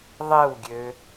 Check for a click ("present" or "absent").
absent